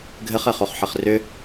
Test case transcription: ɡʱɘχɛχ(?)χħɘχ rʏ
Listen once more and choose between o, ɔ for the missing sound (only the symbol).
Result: o